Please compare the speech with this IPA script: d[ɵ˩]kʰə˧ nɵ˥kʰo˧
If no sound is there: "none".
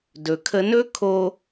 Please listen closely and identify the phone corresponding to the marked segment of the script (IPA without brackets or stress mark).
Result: ɵ˩